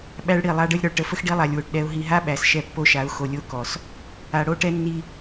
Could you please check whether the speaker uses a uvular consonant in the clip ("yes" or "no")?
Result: no